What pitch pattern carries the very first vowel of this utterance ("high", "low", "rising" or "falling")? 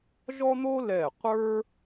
high